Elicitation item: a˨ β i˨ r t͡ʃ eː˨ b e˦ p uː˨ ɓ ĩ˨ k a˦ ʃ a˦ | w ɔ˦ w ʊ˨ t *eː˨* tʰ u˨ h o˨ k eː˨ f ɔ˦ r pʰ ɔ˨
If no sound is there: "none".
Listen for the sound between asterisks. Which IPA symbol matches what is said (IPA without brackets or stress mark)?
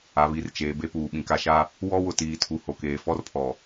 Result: iː˨